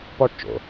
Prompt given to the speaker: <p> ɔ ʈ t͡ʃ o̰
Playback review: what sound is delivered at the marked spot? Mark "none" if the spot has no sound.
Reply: p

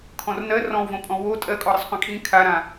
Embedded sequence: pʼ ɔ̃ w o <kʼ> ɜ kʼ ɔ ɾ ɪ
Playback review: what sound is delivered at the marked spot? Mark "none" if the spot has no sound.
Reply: tʼ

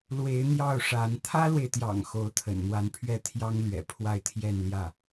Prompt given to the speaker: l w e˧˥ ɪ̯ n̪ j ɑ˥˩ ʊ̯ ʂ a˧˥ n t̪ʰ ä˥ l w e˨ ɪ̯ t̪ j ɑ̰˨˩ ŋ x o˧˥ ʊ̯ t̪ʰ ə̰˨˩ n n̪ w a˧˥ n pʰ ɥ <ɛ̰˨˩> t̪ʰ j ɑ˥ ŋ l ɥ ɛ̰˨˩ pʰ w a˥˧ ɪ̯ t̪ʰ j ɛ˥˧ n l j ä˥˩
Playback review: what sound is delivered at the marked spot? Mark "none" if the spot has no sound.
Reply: ɛ˥˩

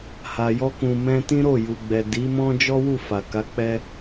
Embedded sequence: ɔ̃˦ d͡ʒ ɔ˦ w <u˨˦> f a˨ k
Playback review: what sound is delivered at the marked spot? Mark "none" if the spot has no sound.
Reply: u˦˨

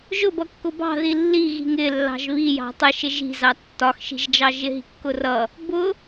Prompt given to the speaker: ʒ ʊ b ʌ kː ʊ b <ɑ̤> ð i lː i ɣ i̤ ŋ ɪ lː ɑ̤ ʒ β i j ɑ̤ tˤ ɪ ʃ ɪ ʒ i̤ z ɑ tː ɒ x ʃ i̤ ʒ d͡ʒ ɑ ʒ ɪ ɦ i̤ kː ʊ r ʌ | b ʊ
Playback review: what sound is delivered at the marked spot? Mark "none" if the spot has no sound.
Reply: ɑ̤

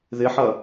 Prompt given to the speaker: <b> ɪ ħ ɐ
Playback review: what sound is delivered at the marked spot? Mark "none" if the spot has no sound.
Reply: ð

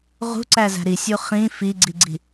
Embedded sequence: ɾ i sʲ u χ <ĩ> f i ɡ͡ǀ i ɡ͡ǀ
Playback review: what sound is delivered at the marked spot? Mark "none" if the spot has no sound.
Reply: ĩ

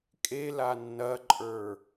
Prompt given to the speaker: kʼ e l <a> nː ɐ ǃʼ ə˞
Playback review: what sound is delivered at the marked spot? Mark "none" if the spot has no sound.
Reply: a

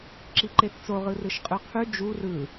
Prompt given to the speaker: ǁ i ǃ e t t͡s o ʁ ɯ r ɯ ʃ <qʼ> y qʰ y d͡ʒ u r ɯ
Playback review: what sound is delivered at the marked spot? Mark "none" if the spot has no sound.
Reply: qʼ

